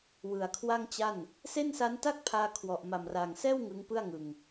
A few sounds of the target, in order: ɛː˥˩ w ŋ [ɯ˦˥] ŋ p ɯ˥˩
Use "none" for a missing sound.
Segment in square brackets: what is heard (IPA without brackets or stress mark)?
ɯ˦˥